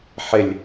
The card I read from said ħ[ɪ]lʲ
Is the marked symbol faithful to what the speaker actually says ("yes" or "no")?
yes